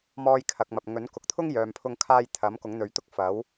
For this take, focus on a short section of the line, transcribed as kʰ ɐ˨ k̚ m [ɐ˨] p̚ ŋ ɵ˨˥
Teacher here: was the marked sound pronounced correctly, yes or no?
yes